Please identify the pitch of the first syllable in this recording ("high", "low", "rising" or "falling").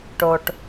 low